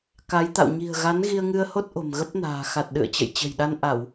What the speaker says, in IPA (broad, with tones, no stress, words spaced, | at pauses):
ka˨˦jt̪a̰˧˨w ɲi̤˨˩ə̯ɣa˨˦n ɣi˧ə̯ŋɨ˧ə̯ho˦˥t̚ ʔo̤˨˩mɣə˦˥p̚na̤ː˨˩ xa˨˩t̚ɗɨ̰˧˨ə̯t͡ɕə̰˧˨j t͡ɕə̤˨˩jɗa˧nʔa˧˩˨w